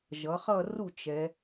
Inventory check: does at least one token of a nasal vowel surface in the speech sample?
no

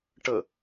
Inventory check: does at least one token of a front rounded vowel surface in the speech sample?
no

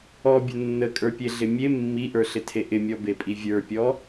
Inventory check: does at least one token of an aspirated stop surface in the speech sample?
yes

